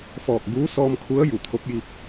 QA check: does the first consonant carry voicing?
no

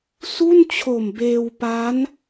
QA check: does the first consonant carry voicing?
no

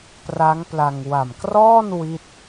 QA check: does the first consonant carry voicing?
no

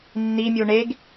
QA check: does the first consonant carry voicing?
yes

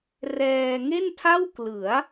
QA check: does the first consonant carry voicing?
yes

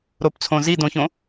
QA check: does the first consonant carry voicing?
yes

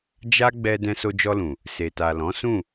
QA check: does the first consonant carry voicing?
yes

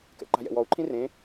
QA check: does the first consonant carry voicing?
no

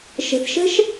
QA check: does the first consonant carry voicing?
no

